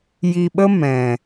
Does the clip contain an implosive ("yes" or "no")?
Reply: yes